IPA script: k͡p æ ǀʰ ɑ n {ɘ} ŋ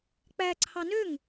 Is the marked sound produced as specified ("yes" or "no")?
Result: no